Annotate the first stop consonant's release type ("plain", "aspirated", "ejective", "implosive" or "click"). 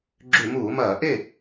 click